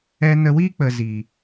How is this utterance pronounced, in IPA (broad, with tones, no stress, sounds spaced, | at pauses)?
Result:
ɛ˧ n ə˧ w iː˦ k͡p ə˨ z iː˨